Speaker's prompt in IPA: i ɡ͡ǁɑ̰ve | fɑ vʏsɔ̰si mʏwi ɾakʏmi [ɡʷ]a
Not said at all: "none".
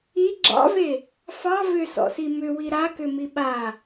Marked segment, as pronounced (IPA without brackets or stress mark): ɓ